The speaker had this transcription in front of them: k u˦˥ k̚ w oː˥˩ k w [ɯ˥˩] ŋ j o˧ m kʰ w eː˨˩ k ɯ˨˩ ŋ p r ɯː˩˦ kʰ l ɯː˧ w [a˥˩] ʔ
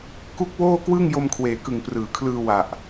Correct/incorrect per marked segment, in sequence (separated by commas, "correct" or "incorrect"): incorrect, incorrect